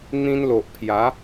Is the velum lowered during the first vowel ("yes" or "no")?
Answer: yes